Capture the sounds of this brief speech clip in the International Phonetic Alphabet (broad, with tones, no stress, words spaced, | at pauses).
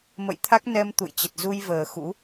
mə̰˧˨jt̪ʰa˦˥k̚nɛ˧m t̪ṵ˧˨jt͡ɕə˨˩t̚ zu˧jvəː˨˩ xṵ˧˥